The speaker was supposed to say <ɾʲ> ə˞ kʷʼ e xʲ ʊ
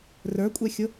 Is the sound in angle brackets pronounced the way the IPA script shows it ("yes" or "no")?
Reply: no